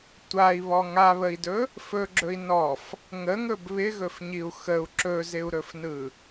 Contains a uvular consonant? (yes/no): no